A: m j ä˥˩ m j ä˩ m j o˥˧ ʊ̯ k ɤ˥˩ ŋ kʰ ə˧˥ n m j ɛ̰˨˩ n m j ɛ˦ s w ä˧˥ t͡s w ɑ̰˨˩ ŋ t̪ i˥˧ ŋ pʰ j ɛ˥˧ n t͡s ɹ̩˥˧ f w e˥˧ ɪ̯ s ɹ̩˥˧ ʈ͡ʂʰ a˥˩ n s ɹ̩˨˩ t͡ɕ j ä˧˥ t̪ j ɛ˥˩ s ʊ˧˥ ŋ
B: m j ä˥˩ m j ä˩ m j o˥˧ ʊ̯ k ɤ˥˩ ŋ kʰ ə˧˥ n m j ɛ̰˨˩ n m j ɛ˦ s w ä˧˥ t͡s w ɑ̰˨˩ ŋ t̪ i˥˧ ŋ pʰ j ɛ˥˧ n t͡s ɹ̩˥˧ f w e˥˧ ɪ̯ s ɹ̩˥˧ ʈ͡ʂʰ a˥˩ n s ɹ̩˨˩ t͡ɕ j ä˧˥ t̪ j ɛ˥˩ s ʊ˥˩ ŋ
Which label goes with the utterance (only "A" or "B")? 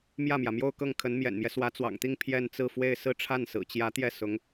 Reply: A